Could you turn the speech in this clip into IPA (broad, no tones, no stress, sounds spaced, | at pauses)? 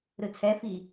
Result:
ɾ ɯ t͡sʰ ɛ f i